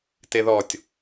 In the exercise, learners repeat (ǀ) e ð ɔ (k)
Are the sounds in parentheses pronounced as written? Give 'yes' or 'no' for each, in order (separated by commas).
no, no